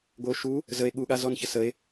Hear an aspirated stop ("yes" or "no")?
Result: no